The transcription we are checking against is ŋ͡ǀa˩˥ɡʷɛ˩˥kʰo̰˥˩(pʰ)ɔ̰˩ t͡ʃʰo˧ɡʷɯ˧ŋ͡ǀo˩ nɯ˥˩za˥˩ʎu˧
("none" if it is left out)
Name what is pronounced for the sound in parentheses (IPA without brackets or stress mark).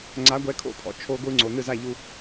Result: pʰ